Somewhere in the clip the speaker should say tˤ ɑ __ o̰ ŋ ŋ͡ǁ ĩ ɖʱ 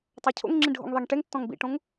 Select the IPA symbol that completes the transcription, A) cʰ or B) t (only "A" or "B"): A